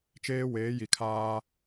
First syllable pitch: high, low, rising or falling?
high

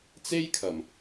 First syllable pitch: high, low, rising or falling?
high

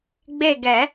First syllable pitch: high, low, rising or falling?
falling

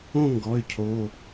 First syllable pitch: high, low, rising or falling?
falling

